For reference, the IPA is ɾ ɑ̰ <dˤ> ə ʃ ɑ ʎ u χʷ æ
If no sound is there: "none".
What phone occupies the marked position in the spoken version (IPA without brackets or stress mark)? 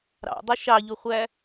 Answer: dˤ